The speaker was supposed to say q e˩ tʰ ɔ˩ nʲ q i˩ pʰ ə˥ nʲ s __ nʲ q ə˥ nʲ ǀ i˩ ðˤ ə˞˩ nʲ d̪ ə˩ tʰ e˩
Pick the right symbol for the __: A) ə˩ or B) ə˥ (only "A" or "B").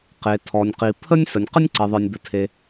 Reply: A